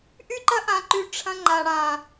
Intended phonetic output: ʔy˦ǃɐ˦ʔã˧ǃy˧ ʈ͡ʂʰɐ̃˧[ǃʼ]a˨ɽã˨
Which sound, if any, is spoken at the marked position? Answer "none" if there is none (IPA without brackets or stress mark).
ŋ͡ǃ